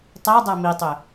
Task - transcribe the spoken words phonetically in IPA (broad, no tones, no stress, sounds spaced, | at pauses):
tˤ æ dˤ æ m i tˤ ø